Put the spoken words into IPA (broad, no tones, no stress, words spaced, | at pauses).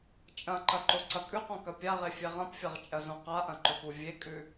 t͡ʃʼɐ̃ǃɐǃoǀɐ kʼʉqõkɐ pʲaʁefʲe ʁɐ̃pfʲɐʁt͡ʃʼɐzõ qaʔɐ̃ǃɵpu vʲekʼʉ